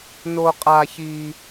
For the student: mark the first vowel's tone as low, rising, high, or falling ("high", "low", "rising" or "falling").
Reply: high